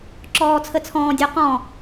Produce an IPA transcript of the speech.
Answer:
ǁ ɔː t͡sʰ ə t͡sʰ ɔ̃ː dʲ ɔ q ɔ̃

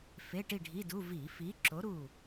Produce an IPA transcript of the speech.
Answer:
f e˧˥˧ ʈ i˥˨ ɖʱ i˧˥˧ d u˧˥˧ v i˧˩˧ f i˨˥ ǁ o˨˥ ɾ u˥˨

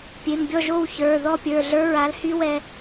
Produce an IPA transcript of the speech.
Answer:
pʲ e˩˧˩ m bʲ ɔ˥˨ ʒ o˥˨ w ç ə˞˩˧˩ ð ɔ˥˨ pʲ ə˞˩˧˩ ɮ ə˞˦˥ ɹ a˨˥ l h y˦˥ w ɛ˧

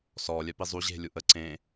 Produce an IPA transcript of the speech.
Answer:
s ɔ lʲ œ p i zˤ u ʑ e̤ lʲ u ʔ ə ǀ ẽ

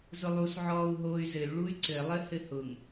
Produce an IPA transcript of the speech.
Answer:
z ʊ lˠ u s ʕ ɔː u̯ ɦ oː y̯ z ɘ y̯ ɭ u y̯ ǀ ɘ lˠ ɘ h ɘ h ʊ ŋ

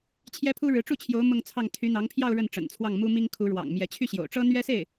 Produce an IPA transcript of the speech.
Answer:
t͡ɕʰ j ɛ˥ pʰ u˥ ɻ ɻ̩˧˥ ʈ͡ʂ u˥˩ t͡ɕʰ j o˧˥ ʊ̯ m ʊ˥˧ ŋ t͡sʰ ɑ˥˩ ŋ t̪ʰ y˧˥ n̪ ɑ˧˥ ŋ pʰ j ɑ˥˧ ʊ̯ ɻ ə˥˩ n ʈ͡ʂ ə̰˨˩ n t͡sʰ w ɑ˥˩ ŋ m u˥ m i˥ ŋ kʰ u˧˥ ɻ w ɑ̰˨˩ ŋ m j ɛ˧˥ t͡ɕʰ y˥˩ ɕ j o̰˨˩ ʊ̯ ʈ͡ʂ ɤ˥ n̪ ɥ ɛ˥ s e˥˩ ɪ̯

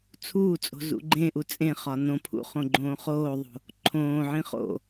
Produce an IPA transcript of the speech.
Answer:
t͡sʰ uː t͡sʼ o̤ z ṵ ɡ͡ǃ ẽ ʔ u t͡sʼ ẽ χ ɒ n õ pʰ ṵ χ õ ɡ͡ǃ õː χ oː ðˤ o̤ | ǃʰ õː ʕ ĩ χ o̰

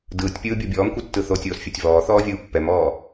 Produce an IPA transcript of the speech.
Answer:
d ɯː tʲ pʲ ɯː bʲ o bʲ ɔː m kʷ ɯ tː ɯ θ o tʲ oː s fʲ a tʲ v ɔː θ ɔː vʲ ɯː pː ɛ m ɔː

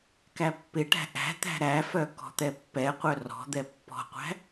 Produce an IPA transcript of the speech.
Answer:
k æ pː ɪ ʈ æ̤ ʔ æ̤ t̪ æ̤ ɾ æ f œ k ɔ̤ t̪ ɛ pː ɛ qʷ œ r ɔ̤ d̪ ɛ pː ɔ̤ qʷ æ̤

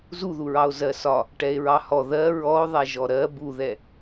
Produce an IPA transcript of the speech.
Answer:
z u ð u ɹ ɑ o̯ z ɜ s ɒ | ʈ ɛ e̯ ɹ ɑ h ɔ ð ɜ ɹ ɔ o̯ ðˤ ɛ ʒ ɔ ɾ ɜ b u ð ɛ

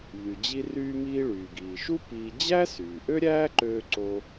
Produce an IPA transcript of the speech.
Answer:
ʎ y˩ d͡ʑ i˧ r yː˧ m iː˧ ɭ yː˩ ɡ iː˩ ʃ u˥ p iː˧ d͡ʑ æ˥ s yː˩ ʔ ø˥ ɾʲ æː˥ ǃ øː˧ ǀ o˧

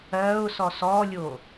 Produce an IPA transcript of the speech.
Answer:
ɜ ʊ̯ s ɔ s ɔ lʲ o

